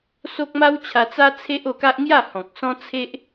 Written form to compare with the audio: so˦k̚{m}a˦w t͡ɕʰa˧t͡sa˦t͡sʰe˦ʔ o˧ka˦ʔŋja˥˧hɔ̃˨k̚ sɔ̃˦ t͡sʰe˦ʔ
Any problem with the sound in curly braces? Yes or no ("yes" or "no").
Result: no